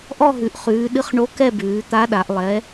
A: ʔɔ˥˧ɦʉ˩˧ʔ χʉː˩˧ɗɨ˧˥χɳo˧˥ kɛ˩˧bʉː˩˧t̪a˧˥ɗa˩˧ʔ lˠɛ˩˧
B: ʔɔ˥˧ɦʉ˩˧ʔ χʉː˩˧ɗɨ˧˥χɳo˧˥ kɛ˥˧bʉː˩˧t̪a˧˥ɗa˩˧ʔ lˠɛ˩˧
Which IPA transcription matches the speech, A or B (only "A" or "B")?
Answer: B